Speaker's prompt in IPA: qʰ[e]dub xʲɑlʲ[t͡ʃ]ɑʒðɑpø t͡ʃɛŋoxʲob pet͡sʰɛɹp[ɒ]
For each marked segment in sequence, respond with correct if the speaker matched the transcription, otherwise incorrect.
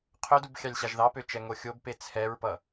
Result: incorrect: ø, incorrect: ɕ, incorrect: ʌ

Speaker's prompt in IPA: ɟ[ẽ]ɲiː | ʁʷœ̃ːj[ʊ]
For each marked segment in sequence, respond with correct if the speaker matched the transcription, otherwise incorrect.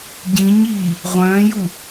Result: incorrect: ĩ, incorrect: u

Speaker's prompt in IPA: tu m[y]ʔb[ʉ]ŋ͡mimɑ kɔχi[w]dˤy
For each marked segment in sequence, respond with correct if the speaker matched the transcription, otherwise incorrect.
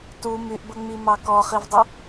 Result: correct, incorrect: ə, incorrect: v

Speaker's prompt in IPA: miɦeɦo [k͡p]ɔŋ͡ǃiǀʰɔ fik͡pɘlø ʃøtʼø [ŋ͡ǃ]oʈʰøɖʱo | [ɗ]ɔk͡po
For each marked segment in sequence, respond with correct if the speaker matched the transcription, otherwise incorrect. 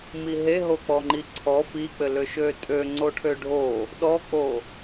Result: correct, incorrect: ŋ͡ǀ, correct

